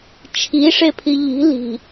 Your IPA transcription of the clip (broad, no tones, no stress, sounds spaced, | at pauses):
t͡ʃʰ i ʂ e pʰ i ʎ i̤ l i̤